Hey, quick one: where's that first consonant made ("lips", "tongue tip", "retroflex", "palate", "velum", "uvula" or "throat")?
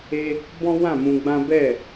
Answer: lips